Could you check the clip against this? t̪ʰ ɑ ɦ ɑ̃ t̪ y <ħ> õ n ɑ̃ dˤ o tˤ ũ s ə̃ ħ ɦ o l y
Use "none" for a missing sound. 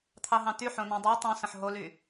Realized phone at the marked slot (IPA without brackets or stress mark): ħ